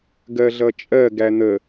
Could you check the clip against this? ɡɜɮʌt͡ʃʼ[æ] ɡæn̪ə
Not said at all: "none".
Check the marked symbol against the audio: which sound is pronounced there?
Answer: ɜ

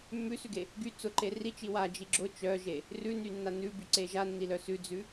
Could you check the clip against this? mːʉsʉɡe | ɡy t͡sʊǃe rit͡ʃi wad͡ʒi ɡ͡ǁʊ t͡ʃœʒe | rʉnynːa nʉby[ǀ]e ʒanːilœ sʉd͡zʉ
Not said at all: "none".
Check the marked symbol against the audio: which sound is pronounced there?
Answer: ǀ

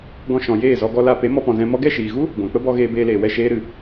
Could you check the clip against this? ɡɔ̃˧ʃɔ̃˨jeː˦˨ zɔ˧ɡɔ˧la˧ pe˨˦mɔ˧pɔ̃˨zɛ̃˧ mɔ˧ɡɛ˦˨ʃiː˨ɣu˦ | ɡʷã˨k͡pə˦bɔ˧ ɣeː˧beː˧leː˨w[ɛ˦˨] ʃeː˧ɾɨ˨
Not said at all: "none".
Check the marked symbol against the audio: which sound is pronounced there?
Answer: ɛ˦˨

